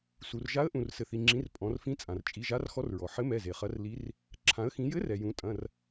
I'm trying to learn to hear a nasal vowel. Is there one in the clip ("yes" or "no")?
yes